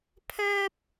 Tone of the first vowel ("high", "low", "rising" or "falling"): high